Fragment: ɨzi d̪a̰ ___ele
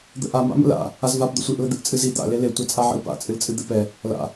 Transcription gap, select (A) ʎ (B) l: B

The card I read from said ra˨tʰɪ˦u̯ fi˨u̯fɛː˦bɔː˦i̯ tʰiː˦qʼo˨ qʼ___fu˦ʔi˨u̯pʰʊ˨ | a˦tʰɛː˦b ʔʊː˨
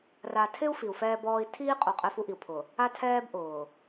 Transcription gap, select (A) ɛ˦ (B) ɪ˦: A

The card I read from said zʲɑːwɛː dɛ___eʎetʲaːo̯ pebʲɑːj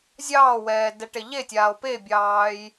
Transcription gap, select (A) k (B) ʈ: B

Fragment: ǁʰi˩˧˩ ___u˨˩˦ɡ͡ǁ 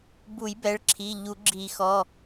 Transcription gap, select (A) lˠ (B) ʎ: B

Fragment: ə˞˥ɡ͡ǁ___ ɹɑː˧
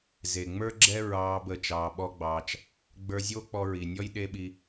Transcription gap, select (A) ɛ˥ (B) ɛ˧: A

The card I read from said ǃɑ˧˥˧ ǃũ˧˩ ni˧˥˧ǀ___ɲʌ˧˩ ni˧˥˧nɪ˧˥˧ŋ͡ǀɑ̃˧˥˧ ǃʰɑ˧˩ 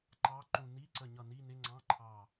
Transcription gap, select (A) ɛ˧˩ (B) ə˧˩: B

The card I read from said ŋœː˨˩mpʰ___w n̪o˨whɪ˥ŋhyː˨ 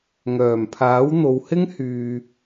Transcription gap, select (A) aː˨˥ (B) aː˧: A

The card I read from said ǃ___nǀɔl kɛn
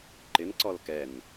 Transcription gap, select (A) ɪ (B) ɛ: A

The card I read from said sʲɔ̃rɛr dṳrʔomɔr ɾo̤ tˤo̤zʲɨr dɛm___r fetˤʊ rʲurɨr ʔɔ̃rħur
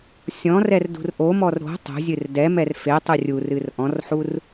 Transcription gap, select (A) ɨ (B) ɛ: B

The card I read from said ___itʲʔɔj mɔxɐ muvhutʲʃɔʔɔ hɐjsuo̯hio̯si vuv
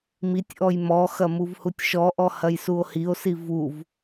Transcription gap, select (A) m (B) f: A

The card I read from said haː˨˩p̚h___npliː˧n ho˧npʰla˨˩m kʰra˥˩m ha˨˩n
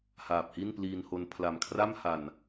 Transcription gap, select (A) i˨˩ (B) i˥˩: B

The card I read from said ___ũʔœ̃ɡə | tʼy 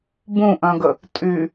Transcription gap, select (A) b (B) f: A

